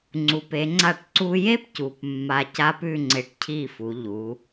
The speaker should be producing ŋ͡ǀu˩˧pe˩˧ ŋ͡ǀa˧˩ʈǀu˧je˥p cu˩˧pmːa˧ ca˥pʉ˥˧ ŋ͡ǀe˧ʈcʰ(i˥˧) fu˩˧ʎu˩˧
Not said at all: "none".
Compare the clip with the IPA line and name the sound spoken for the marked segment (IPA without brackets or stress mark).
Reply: i˥˧